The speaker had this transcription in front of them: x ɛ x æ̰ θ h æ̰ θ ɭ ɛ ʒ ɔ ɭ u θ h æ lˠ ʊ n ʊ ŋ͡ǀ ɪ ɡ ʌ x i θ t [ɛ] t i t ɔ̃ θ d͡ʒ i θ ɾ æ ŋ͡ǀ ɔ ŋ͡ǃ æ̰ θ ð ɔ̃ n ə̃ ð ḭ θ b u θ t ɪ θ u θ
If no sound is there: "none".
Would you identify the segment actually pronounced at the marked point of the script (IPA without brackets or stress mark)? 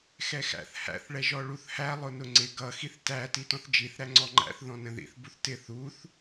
æ